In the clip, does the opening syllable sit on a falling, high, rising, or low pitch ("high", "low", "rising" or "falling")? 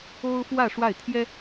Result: high